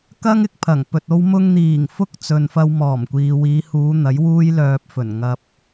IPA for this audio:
k ɐ˥ ŋ ɪ˧ k̚ pʰ ɐ˨˩ ŋ p ɵ˨ t̚ o˥ w m ʊ˧ ŋ n̪ iː˨˩ ŋ f ʊ˥ k̚ t͡s ɵ˨ n f ɐ˧ w m ɔː˨˩ m kʷ iː˨ w iː˨˧ h uː˨˧ n̪ ɐ˨˥ j w uː˥ j l œː˧ p̚ f ɵ˨˩ n ŋ ɐ˨ p̚

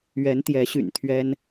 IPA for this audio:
ɥ ɛ˧˥ n t̪ j ɛ˧˥ ɕ y̰˨˩ n t̪ʰ ɥ ɛ˥ n

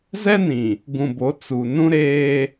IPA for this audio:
z ɛ˦ n ĩ˨ | ɡ ũ˨ b o˨˦ t͡s u˨ n ũ˦ ɾ eː˦

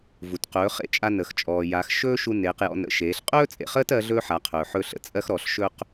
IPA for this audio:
v u˩ t q ɵː˩˧ χ ḛ˧ t͡ʃʼ a˧ n ə˩ x t͡ʃʼ ɔː˩ j a˩˧ x ʃ ɵː˥ ʃ u˧ n eː˩˧ q j ɔ̰˩˧ n ə̰˩˧ ʃ eː˩˧ ɬ qʼ ɵː˥ t͡sʼ ḛ˩ χ əː˥ t ɜ˧˥ ɮ ɵː˥ ħ a˩˧ qʰ ɵː˩ ħ ɵ˧ ɬ ə̰˩ t͡sʼ ɜ˥ x ɾ ɔ˩˧ ɬ ʃ ɵ˥ q

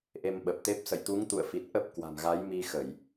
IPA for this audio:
ʔ e˧ m ɓ ə˨˩ p̚ t̪ e˦˥ p̚ s ə̰˧˨ j t̪ u˨˦ ŋ t̪ ṵ˧˨ ə̯ f i˨˩ t̚ ʔ ə˦˥ p̚ k w a̤˨˩ m ɣ a˨˦ j m i˧ x ə˧˩˨ j

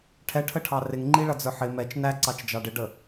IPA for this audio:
ʈʰ ɛ ʈʰ ə ʈʰ ɑ r ɪ ŋ ŋ͡ǃ i ɭ ʌ d͡z ə˞ ħ ɪ m ɛ t͡ʃ n æ ǀ ɑ t͡ʃ d͡ʒ ɑ ɖ ɪ ɖ ə

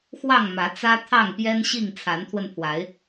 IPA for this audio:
x w ɑ˥˨ ŋ m ä˨˦ t͡s ä˦ t̪ʰ ɑ˥˨ ŋ p j ɛ˦ n ɕ i˥˨ ŋ t͡sʰ a˨˦ n t̪ʰ w ə˧ n pʰ w a˨˦ ɪ̯

